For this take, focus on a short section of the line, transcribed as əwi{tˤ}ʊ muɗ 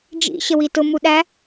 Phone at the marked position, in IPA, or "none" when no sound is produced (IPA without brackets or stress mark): t